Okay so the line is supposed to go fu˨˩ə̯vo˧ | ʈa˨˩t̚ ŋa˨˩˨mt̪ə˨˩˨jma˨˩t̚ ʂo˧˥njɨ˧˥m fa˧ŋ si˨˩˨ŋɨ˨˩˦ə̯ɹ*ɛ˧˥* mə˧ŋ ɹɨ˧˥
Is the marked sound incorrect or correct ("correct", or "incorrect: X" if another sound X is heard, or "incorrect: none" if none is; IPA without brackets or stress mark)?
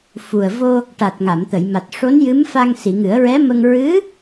correct